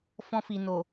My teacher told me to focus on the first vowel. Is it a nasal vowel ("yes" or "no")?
yes